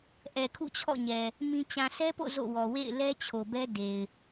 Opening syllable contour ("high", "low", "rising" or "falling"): low